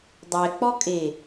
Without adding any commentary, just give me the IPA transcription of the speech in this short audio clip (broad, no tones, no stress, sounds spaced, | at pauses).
dˤ ɛ k͡p ɔ kʼ e